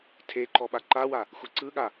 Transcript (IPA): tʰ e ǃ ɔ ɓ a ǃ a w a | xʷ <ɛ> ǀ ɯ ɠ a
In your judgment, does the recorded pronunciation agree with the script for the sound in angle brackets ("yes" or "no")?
yes